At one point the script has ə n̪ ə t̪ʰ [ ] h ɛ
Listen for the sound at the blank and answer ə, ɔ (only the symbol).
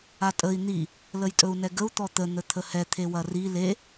ə